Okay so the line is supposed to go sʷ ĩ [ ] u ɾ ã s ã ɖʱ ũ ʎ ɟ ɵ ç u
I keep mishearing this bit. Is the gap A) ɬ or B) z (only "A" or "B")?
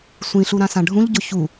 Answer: A